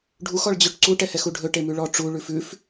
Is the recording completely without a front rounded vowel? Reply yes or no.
no